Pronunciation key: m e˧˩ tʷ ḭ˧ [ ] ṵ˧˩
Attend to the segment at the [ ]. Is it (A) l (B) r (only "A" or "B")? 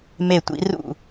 B